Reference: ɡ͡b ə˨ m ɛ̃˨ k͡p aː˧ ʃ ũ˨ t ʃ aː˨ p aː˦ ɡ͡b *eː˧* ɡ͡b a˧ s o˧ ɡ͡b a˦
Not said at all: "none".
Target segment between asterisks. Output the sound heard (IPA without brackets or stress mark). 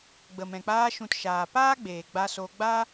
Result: eː˨